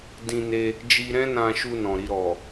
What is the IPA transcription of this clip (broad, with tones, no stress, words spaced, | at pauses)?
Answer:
dĩ˧ne˧ | d͡ʒi˧ɾɛ̃˦nã˧ʃu˧ nɔ̃˨ɾi˧ɾɔ˨